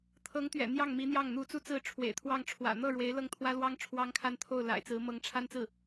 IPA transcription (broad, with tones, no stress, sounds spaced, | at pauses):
t̪ʰ ɤ˧˥ ŋ t̪ ɥ ɛ̰˨˩ n̪ j ɑ˥˩ ŋ m i˧˥ n̪ j ɑ˥˩ ŋ n̪ u˧˥ t͡s u˥˧ t͡s ɹ̩˥˩ ʈ͡ʂʰ w ḛ˨˩ ɪ̯ t̪ʰ w ɑ˥˩ ŋ ʈ͡ʂʰ w ä̰˨˩ n̪ ɤ˥˩ ɻ w e˧˥ ɪ̯ l ɤ˥˩ ŋ t̪ʰ w ä˥ l w ɑ˥ ŋ ʈ͡ʂʰ w ɑ˥ ŋ kʰ a˥˧ n t̪ʰ o˥˩ ʊ̯ l a̰˨˩ ɪ̯ t͡s ɹ̩˧˥ m ɤ˧˥ ŋ ʈ͡ʂʰ a˥ n t͡s ɹ̩˥˩